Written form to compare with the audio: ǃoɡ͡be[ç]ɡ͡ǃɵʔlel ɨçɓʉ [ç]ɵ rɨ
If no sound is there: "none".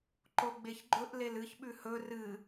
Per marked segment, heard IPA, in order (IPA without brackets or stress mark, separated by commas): ç, h